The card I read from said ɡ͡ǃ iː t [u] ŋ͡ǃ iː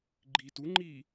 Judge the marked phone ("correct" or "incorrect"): correct